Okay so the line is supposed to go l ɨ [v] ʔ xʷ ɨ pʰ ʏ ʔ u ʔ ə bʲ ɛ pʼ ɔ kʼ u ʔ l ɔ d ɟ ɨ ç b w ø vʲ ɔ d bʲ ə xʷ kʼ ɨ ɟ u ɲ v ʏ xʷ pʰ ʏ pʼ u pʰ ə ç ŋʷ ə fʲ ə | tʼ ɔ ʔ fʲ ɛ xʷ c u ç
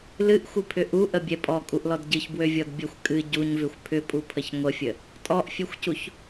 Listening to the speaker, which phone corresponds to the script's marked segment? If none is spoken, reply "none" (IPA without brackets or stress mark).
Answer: none